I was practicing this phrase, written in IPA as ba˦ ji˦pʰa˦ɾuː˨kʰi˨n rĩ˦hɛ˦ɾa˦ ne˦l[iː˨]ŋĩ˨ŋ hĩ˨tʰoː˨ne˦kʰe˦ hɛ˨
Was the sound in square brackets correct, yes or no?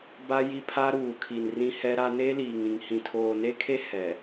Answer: yes